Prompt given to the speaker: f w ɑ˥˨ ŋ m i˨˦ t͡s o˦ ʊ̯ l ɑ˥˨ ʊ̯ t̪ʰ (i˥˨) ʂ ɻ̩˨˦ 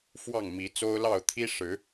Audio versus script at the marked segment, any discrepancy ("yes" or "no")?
yes